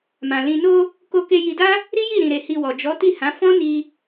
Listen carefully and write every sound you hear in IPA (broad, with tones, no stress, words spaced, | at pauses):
mã˨ lĩ˨no˧ | ko˧ke˧ ji˧da˦ | ɾi˦ji˦˨ ɾĩ˧ɾe˧hi˧wɔ˨ d͡ʒɔ˨˦ti˦˨hã˨˦ fɔ̃˦ni˧